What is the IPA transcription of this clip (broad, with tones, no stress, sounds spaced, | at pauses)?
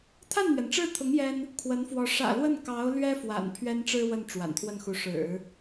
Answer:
t̪ʰ a˥˩ n n̪ ɥ ɛ˩ n ʈ͡ʂ ɻ̩˥˩ t̪ʰ ʊ˧˥ ŋ j ɛ˥ n | kʰ w ə˧˥ n f w ɔ˧˥ ʂ ä̰˨˩ l w ə˥˩ n k ɑ˧˥ ʊ̯ l ɥ ɛ˥ f w a̰˨˩ n pʰ ɥ ɛ˥ n ʈ͡ʂ ɻ̩˥ w ə˥˩ n ʈ͡ʂ w a̰˨˩ n t̪ʰ w ə˥˩ n x u˧˥ ʂ ɻ̩˨˩˦